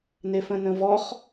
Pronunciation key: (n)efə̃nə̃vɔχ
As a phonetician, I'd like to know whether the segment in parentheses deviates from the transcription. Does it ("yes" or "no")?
no